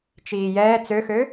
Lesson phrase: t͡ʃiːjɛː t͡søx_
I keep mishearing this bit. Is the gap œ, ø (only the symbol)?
ø